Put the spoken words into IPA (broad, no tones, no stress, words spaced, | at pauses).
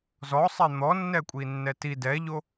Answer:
zɔsˤɛ n̪ɔnːɛ kʷʼinːɛti dɛʎo